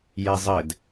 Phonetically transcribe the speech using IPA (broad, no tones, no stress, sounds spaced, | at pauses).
j ɛ zˤ ɘ d